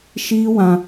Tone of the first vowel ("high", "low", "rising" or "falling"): high